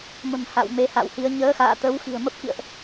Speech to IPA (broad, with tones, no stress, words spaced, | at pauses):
mə̤˨˩m ha̰˧˨w me˨˦ha̰˧˨whi˨˦ə̯ ɲəː˨˦xa̰ː˧˨t̪ə˨˦wxi̤˨˩ə̯ mə˦˥p̚kḭ˧˨ə̯ʔ